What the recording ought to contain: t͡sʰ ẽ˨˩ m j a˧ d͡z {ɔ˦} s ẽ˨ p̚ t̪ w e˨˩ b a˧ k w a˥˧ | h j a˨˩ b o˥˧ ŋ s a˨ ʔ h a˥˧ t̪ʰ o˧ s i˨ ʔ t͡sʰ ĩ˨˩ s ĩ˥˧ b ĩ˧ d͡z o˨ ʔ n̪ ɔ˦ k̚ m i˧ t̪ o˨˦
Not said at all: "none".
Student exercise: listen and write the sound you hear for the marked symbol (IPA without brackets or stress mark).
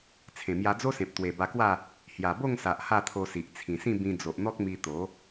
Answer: o˦